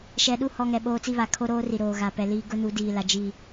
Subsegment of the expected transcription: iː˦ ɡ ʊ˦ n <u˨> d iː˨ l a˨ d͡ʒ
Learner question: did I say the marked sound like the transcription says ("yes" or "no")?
no